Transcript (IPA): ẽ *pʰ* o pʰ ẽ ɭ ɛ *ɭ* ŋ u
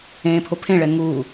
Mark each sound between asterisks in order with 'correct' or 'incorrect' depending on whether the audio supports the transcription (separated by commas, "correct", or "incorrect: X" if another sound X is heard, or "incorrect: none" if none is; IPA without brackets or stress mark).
correct, incorrect: none